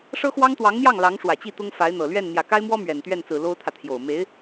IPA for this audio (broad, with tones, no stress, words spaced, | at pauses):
ʂɤ˥xwɑ˥ŋt̪wɑ˧˥ŋn̪jɑ˥˩ŋ lɑ˧˥ŋʂwä˨˩t͡ɕi˥˩t̪ʊ˥ŋ fa˧˥ɪ̯n̪ɤ˨˩ lɥɛ˥˩n n̪jä˨˩ka˥ɪ̯mwɔ˥ mɥɛ˨˩nt̪ɥɛ˥˩nt͡sɹ̩˨˩ lo˥ʊ̯t̪ʰä˨t̪ʰjo˨˩ʊ̯ me˧˥ɪ̯